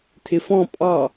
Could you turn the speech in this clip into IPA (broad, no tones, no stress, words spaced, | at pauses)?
tʰɪfɔ̃ pʼɑ